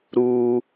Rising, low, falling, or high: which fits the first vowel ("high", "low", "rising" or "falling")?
high